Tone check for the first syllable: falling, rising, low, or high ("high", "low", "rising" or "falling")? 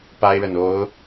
high